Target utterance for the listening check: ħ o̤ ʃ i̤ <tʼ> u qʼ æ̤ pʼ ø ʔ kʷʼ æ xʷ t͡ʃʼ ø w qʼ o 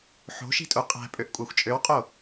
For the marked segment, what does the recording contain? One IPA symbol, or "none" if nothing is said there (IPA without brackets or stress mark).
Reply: tʼ